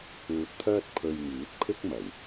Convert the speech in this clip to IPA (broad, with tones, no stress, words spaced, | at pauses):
uː˧t̚t̪ʰœː˥t̚ pʰɵ˧ɥŋiː˨˥t̚pʰɪ˥k̚mɐ˨˩w